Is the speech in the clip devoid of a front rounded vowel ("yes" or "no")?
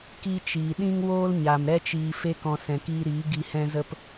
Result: yes